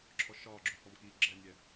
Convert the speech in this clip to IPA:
ǁʰ ɔ ʃ ɒː ɡ͡ǁ ɵ f ɔ m k iː ɡ͡ǁ ɛ nʲ ɛ

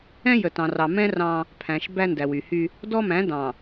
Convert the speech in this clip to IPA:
ɛ̃˦ j ə˨ t ɑ̃˨ r ɑ˨ m ɛ̃˦ r ɑ̃˦ | pʰ æ̃˨ ʃ b æ˦ n d æ˨ w y˨ h y˦ | d ɔ˦ m æ̃˨˦ d ɑ̃˨

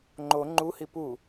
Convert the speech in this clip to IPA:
ŋ͡ǃ o ŋ͡ǃ u h i p u

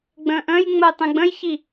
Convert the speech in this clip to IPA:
ɡ͡b ə̃ː ʔ ə̃ː j ŋ͡m ə j tˤ ĩ ɡ͡b ə̃ j ç i

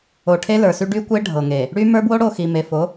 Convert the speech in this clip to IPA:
o˨ ʈʰ e˦ l ə˞˨ s y˦ ɖ y˦ kʷ e˦ ɖʱ ɤ˨ ŋ e˨ | ɽ y˦ m ə˞˦ b w o˦ ɽ o˦˨ x i˨ m e˨ f o˨˦

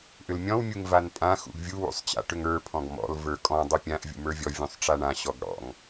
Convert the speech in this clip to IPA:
ʔ ʏ l mʲ ɔ̃ w mʲ u ŋ v a n pʼ ã x ṵ ɡ vʲ u w ṵ sˤ t͡ɕ a̰ ʈ ʏ ŋ ə˞ pʰ ɔ̃ ɡ m ɔ̰ l v ə˞ kʼ ɔ̃ dˤ ʏ pʲ ã ʔ vʲ ṵ m ə˞ vʲ ɔ vʲ ũ sˤ ʈ͡ʂ a ɳ ã ɕ ɔ ɡ ɽ ɔ̰ ŋ

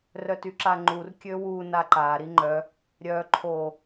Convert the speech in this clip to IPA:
r œ t y ǁ a ŋ͡ǃ u r kʲ ø w u n a ǃ a ɾ i ŋ͡ǃ œ | ɾʲ œ ǃʰ o

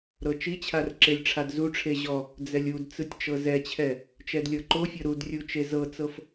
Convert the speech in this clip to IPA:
ɾ ɤ t͡ʃ i t͡ɕʰ a r ǁ e lʲ ʈ͡ʂʰ a d z u ʈ͡ʂʰ e ʑ ɔ | d͡z ɛ lʲ u d t͡s ɯ tʲ t͡ʃ ɤ z ɛ t͡ɕʰ ɛ | t͡ʃ ɛ d lʲ ɤ ǃ o fʲ ɤ ɾ u d rʲ u t͡ʃ e z ɤ t͡s ɤ f

